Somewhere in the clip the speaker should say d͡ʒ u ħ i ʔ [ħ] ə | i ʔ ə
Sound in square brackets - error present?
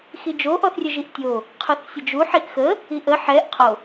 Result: yes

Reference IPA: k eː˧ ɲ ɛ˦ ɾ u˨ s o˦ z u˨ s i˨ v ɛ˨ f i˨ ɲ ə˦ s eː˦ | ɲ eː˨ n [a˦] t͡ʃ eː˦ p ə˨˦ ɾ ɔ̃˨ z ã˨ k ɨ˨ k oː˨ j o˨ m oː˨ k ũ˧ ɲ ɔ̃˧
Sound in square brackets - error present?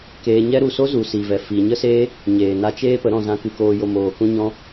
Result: yes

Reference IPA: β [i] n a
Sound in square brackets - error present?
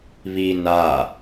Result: no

